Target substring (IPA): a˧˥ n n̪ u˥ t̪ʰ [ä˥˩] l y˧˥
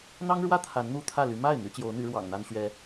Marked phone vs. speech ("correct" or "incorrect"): correct